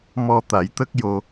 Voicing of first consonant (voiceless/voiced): voiced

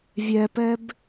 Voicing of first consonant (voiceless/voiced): voiced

